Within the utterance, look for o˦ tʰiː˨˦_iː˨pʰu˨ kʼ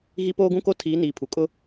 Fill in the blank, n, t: n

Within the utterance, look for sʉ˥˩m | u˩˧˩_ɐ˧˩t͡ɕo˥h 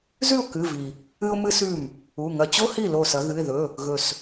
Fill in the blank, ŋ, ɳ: ŋ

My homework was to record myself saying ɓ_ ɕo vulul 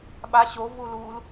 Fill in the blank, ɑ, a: a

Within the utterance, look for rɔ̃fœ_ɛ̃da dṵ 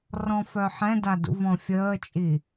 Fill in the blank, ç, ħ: ħ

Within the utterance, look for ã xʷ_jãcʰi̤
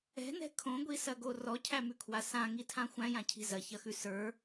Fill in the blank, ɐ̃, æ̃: æ̃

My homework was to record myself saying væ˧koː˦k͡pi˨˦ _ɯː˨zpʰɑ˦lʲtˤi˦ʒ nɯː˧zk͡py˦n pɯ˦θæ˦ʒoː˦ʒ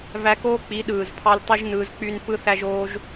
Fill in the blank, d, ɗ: ɗ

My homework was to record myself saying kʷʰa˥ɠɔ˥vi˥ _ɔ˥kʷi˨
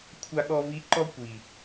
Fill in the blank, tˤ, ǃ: ǃ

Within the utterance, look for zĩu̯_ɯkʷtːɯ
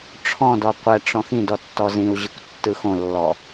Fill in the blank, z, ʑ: ʑ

